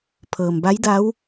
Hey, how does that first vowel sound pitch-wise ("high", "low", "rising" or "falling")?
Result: low